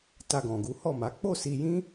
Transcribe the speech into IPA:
t a˧ ɡ ɔ̃˨ ɡ u˨˦ h ɔ˦˨ m a˨˦ k͡p o˦˨ s i˧ j ĩ˦

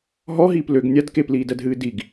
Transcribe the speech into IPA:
ɦ ɔ ɦ iː p l ø ɡ nʲ a d k e p l iː d ɜ d ɦ ɨː d i ɡ

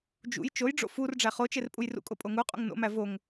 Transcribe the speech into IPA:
d͡ʒ ṵ j t͡ʃ o j ɖ͡ʐ o̰ f u r ɖ͡ʐ æ χ o t͡ʃ e r pʼ u j r ṵ kʼ o pʼ o ŋ u qʼ ṵ ŋ n o̰ m æ v o ŋ

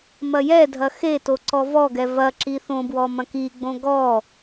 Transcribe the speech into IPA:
m ɐ j ɛ dʱ ɐ x e t o ǀ ɔ v ɔ ɡ ɛ v ɐ ǁ i θ õ b w ɔ m ɐ̃ k i ɡ͡b õ ɡ ɔ

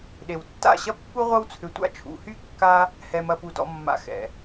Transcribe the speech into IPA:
ɗ e˩ w tː a̰˥˩ ɕ ɐ˥ pː u˥ ʁʷ ɐ˥ w t͡sʰ ʏ˧ tʷ a̰˥ t͡ʃʰ ṵ˧ h y˥˩ kː a˥ | h ɛ˧ m ɐ˧ p u˧ d ɔ̰˧ mː a̰˧ x ɛ̰˩

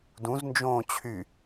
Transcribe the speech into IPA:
d ũ z n d͡ʒ õː t͡ɕʰ y

